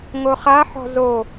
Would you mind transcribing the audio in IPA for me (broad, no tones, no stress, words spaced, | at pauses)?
ŋoχaħɔ̤ zo